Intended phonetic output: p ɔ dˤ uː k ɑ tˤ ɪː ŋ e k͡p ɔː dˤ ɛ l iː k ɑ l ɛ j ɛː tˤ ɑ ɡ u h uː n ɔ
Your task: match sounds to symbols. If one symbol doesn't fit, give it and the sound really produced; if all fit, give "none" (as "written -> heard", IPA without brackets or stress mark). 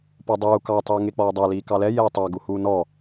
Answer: none